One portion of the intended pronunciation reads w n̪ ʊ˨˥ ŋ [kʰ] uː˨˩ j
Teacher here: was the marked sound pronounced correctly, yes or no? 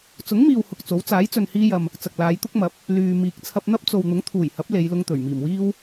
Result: no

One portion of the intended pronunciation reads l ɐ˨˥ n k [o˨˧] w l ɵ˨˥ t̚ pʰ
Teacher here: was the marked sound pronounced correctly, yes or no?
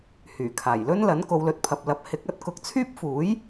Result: yes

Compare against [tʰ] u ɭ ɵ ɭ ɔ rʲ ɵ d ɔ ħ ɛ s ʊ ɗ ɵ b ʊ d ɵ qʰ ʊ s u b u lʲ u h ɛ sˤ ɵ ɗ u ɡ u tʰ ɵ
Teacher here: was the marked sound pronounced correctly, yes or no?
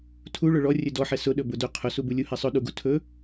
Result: yes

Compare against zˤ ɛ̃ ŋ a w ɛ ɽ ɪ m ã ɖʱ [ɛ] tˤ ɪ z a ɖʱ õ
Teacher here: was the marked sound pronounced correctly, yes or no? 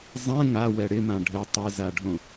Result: no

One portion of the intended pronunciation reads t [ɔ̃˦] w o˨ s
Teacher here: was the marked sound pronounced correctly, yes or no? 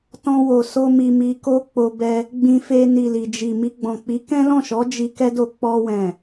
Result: no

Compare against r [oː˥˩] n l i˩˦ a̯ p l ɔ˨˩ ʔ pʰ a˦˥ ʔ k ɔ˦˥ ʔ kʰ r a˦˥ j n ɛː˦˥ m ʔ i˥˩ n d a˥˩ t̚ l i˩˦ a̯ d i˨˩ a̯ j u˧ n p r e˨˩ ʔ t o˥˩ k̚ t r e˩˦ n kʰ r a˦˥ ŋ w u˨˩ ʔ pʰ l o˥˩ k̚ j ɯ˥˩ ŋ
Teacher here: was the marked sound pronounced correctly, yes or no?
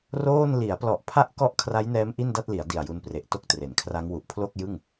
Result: yes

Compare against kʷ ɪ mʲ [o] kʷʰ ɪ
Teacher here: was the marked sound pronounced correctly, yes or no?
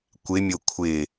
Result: yes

